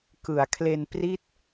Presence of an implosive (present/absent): absent